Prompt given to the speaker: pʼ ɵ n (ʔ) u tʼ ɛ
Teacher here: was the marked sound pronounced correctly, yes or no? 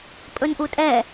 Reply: yes